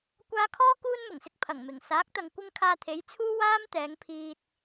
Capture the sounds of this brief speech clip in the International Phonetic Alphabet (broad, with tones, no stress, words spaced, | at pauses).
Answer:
kʷaː˧kʰɔː˥ kuː˥nmʊ˨˩ŋsɪ˧k̚ pʰɐ˨˩ŋmɪ˨˩ŋ saː˨˥k̚t̪ɐ˨ŋ kʷɪ˥ŋ kʰaː˧t̪ʰe˨˥j t͡sʰuː˥ waː˥mt̪ɛː˨˧ŋpʰiː˧t̚